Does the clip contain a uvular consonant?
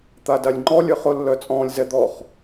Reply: yes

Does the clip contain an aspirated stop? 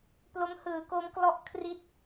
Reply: yes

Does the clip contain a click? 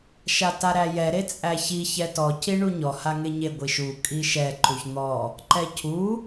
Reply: yes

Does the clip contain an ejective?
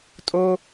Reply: yes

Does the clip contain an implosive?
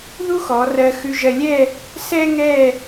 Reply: no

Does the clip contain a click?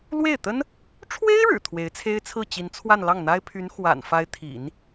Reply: no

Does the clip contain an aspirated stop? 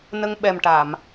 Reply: no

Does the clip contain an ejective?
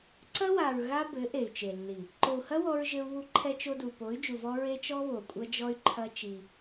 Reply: yes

